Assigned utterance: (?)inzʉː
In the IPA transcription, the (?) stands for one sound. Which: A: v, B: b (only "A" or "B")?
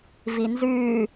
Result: A